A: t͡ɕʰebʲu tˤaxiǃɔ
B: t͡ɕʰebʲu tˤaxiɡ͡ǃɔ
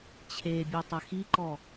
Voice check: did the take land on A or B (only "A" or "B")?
A